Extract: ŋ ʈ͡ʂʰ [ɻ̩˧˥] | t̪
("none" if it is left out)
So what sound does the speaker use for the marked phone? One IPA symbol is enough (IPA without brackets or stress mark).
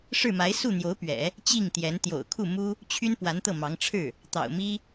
ɻ̩˥˩